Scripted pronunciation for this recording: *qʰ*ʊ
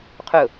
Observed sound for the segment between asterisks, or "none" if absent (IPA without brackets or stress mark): qʰ